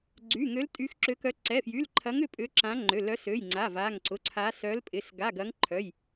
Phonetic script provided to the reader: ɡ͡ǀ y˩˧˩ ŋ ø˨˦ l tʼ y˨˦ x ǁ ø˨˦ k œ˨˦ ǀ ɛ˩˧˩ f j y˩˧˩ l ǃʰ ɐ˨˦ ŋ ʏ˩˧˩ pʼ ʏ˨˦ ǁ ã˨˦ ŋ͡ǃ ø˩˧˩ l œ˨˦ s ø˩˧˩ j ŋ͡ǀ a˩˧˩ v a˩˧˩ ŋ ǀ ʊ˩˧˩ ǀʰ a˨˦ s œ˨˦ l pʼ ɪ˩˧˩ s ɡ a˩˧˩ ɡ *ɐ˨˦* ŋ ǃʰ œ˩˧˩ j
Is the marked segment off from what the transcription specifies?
no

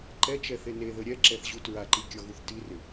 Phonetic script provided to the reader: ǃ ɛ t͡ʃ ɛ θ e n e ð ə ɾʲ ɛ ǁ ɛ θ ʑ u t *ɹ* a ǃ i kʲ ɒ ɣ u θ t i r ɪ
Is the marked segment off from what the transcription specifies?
no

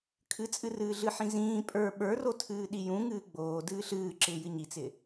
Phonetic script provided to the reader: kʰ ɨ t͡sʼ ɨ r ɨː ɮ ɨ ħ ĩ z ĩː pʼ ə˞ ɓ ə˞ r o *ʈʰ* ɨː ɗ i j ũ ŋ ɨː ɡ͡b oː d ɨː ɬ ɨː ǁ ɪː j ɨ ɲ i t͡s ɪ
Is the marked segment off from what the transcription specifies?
yes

